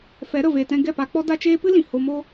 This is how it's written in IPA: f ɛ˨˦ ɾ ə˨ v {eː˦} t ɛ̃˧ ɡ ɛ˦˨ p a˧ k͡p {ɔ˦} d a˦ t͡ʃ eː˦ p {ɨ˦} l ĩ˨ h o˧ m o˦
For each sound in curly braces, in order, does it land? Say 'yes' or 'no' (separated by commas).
no, yes, yes